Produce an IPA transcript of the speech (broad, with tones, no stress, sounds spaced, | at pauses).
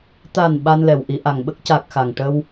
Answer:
t̪ a˨˩ n ɓ a˧ n l ɛ˨˩ w ʔ i˨˩˦ ʔ a˨˩ ŋ ɓ ə˦˥ k̚ c a˨˩ k̚ x a˨˩ ŋ ʈ ə˧ w